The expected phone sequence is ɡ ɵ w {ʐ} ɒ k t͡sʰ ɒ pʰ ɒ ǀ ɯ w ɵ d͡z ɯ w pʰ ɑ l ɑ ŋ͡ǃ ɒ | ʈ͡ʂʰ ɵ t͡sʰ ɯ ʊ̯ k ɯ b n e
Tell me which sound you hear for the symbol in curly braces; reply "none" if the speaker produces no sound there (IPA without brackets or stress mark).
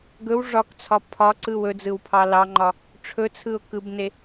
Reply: ʐ